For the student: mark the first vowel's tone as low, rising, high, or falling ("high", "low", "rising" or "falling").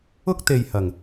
high